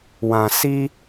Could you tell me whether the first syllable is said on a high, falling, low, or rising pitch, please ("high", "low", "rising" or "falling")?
low